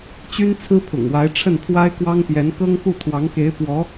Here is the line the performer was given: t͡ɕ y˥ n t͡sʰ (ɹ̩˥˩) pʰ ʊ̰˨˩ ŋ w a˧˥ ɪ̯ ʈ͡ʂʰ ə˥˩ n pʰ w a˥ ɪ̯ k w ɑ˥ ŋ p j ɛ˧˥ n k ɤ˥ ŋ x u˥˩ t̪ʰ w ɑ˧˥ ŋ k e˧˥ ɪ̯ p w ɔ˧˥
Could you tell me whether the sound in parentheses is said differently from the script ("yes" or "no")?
yes